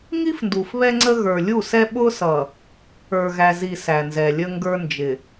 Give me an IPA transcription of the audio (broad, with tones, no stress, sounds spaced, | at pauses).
ŋ i˦ f n d u˨ f β ɛ˦ ŋ͡ǀ ə˦ ɣ ə˞˨ lʲ u˦˨ s ɛ˦ ɓ ʊ˦ s ʌ˨ | ə˞˨ ɣ æ˨ z i˨ s æ˨ n z ɛ˨ lʲ ə˦ ŋ ɡ ə˞˦ n d͡ʒ ɪ˨